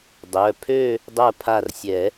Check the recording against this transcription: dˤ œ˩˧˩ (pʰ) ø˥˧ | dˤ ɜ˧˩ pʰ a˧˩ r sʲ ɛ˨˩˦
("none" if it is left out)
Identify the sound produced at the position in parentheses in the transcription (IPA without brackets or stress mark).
pʰ